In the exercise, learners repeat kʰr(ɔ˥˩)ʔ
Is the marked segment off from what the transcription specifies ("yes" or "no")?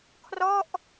no